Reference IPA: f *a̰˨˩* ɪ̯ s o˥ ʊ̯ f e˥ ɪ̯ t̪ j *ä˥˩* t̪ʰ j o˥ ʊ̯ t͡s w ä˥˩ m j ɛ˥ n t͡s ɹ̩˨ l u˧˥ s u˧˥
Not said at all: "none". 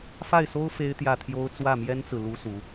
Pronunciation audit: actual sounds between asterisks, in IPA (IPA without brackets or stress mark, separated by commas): a˥˩, ä˥˩